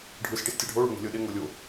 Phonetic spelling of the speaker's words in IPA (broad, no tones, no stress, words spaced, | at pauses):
ɖʱɯs ʈistʲaɖʱo ɭo̤ŋe̤lʲɤɗe ŋolʲo